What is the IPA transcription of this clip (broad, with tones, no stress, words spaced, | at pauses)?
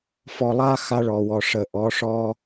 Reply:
fɔ˨lˠa˦ xa˦ɭɔ˨wɔ˨ ʂə˨ʔɔ˨˦ʂɔ˦